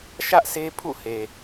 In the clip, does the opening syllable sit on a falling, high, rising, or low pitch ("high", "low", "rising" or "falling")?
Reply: high